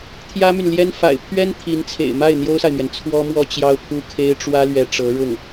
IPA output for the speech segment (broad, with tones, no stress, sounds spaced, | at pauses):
t̪ʰ j ä˥ m y˨ n l j ɛ˥ n f a̰˨˩ ɪ̯ pʰ ɥ ɛ˥ n t̪ʰ i˧˥ n t͡sʰ ḛ˨˩ ɪ̯ m a˥˩ ɪ̯ n̪ j o˥ ʊ̯ s a˨ ɪ̯ m ɥ ɛ˩ n t͡sʰ w ɔ˥ m w ɔ˥ t͡ɕ j ɑ˥ ʊ̯ pʰ u˥ kʰ e˥ ɪ̯ ʈ͡ʂ w ä˥ l ɥ ɛ˧˥ ʈ͡ʂ ɤ˧˥ ɻ ʊ˥˩ ŋ